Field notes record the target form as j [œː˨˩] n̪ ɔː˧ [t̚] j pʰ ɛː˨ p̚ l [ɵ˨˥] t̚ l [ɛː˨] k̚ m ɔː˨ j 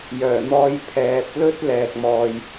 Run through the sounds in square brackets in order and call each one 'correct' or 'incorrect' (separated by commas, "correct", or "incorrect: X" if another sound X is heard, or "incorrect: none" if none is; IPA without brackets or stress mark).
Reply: correct, incorrect: none, incorrect: ɵ˥, correct